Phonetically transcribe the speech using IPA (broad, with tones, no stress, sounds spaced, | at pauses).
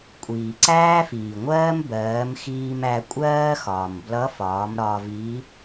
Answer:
kʷʼ iː˩ ǀ æː˥ f iː˩ ŋʷ ɜː˥ m b ɜː˩˧ m x iː˧ m æ˧ kʷʼ ɜː˥ x ɒː˩ m b l ʌ˧˥ f ɒː˩˧ m ɾ ɒː˧ v i˧˥